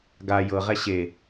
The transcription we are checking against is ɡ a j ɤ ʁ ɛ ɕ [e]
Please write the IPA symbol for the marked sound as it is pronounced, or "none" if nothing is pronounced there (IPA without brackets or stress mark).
e